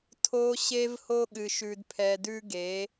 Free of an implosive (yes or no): no